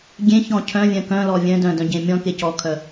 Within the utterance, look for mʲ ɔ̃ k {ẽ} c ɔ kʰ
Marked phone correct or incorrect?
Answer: incorrect